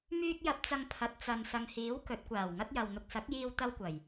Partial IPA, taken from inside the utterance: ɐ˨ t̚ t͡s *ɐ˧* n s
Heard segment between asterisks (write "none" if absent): ɐ˨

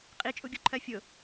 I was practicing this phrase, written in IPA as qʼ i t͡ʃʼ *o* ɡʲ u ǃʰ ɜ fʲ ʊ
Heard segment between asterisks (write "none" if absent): u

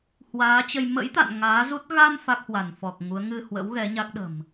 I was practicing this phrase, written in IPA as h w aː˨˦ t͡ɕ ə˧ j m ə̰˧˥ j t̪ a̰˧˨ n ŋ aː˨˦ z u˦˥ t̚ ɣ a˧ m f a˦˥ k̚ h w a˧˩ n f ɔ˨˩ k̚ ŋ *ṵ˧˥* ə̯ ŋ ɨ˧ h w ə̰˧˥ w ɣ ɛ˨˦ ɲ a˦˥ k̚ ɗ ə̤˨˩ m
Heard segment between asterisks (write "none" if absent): u˨˦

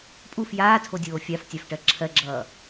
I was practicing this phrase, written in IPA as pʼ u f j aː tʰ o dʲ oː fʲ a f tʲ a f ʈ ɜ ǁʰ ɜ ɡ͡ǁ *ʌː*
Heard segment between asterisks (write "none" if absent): ʌː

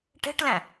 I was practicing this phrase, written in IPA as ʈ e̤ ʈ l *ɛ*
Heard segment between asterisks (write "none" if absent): ɛ̃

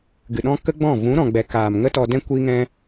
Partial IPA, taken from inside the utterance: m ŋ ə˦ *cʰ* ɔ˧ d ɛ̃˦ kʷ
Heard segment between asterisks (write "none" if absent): t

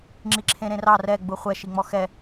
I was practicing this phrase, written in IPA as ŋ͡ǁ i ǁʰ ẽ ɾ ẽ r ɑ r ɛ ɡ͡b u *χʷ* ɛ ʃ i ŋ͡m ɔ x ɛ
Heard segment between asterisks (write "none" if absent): χʷ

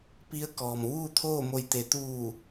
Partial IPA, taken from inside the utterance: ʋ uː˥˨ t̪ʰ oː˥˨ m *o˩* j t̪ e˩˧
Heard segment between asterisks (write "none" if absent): o˧˩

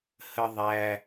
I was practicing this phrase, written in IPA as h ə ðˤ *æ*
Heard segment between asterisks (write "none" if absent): æ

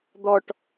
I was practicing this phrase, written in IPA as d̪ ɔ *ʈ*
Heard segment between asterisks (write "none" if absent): ʈ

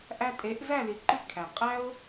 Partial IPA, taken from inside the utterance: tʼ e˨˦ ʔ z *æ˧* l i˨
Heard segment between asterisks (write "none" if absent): æ˦˨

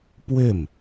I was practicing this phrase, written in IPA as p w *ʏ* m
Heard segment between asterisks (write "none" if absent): ʏ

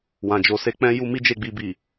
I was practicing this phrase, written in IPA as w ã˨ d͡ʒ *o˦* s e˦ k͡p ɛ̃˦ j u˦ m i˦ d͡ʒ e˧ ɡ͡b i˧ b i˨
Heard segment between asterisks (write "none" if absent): o˨˦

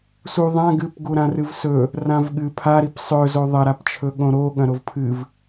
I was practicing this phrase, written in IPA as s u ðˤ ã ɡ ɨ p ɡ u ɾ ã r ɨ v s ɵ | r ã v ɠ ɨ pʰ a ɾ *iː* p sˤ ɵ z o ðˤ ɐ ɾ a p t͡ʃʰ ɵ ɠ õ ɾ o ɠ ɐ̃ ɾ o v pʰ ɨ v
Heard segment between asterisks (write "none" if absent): i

